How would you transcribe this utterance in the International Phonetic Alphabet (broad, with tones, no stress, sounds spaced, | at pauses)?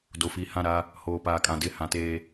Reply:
d o˨ f iː˨ h ã˦˨ ɾ a˦ | h oː˨ p aː˨ kʼ ã˨ d ɪ˦˨ h ã˨ t eː˨